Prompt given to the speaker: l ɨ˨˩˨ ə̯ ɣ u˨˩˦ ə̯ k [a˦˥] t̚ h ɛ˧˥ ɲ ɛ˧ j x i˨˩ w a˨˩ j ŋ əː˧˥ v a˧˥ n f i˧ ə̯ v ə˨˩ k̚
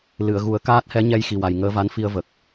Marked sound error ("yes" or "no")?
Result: yes